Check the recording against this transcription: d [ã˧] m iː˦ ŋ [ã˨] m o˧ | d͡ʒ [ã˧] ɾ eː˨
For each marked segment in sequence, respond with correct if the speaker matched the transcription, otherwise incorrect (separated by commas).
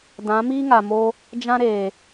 incorrect, incorrect, incorrect